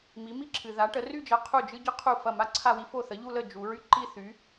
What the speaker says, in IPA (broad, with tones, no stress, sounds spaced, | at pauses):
m i˨˥ m i˥ ǁʰ ɨ˨ ð a˨˥ ʈ ə˨˥ r y˥˧ d͡ʒ ɐ˨˥ qʰ u˥˩ d͡ʒ ɨ˥ ɟ ə˥ qʰ u˥˩ f ɐ˥˩ m a˥ ǀʰ a˥˧ w i˥ f o˥˩ θ ə˨˥ ʎ u˥˧ l ə˥˩ d͡ʒ u˨˥ ɹ y˥ ǃ i˥˧ θ y˨˥